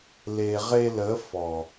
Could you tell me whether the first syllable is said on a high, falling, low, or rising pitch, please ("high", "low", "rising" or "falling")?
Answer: low